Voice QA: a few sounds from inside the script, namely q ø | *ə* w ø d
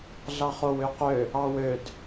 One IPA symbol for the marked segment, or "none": ɑ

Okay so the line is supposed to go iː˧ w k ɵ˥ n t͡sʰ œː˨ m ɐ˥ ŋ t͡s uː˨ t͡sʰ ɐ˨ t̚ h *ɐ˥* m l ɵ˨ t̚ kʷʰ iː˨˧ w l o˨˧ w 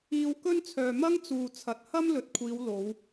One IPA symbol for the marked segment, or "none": ɐ˥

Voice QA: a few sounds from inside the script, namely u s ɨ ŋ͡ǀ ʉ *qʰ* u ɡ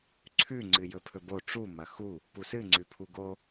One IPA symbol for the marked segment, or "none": pʰ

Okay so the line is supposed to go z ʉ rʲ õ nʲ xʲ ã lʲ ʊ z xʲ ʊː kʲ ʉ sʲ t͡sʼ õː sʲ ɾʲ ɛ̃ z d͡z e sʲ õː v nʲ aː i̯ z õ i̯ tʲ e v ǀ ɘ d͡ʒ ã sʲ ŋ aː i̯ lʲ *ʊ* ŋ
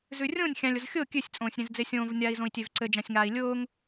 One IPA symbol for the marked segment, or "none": ʊː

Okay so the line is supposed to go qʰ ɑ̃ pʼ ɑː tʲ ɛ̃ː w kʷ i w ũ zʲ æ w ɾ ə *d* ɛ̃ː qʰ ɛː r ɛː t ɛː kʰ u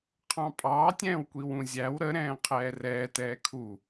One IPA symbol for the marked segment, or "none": ɾ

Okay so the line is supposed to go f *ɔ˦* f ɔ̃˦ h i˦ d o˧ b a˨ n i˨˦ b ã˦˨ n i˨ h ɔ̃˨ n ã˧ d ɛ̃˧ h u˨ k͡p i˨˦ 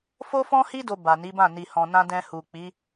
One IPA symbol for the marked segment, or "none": o˦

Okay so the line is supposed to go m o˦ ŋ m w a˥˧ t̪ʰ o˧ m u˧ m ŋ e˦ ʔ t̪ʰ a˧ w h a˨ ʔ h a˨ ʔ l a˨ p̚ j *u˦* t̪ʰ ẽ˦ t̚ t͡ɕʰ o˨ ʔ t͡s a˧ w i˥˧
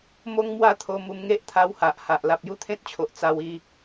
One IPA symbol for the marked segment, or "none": u˥˧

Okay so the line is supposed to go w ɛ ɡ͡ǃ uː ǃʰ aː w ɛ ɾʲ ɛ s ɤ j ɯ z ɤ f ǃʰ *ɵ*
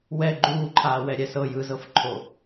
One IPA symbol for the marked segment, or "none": o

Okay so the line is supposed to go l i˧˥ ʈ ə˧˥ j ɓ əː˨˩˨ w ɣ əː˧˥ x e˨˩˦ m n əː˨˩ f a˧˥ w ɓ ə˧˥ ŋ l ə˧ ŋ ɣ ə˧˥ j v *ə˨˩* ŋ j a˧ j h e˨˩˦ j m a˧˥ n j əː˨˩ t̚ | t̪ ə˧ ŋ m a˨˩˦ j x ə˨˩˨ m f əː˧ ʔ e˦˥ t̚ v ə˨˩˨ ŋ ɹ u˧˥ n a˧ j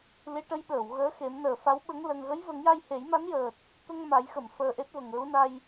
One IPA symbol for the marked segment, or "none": ə˨˩˦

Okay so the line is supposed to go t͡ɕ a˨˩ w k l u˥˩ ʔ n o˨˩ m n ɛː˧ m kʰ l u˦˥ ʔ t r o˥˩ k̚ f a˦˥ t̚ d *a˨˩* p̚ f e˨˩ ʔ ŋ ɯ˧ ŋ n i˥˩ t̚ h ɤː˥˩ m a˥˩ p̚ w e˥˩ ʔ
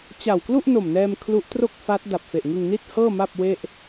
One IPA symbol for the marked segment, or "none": a˨˩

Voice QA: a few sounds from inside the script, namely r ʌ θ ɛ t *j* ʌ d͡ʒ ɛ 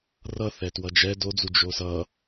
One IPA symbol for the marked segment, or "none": w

